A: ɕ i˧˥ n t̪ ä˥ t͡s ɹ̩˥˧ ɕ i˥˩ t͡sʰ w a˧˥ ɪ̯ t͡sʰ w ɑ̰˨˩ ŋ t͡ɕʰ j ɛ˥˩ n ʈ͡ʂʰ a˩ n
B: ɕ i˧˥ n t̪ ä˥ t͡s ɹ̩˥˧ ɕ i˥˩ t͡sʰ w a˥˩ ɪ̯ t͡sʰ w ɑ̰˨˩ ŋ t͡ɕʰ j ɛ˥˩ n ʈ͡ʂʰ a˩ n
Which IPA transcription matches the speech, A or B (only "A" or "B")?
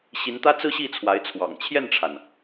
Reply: A